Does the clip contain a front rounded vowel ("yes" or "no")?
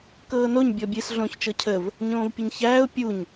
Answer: no